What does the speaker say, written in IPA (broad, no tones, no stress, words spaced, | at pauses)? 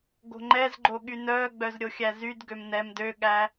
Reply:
ɡo̤ŋ͡ǃɛzɡ͡ǃo ɠynœːɡ͡bœz ɾʲoxʲæzydɡøm nɛm døɠæ